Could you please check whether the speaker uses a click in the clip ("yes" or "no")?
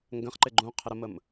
yes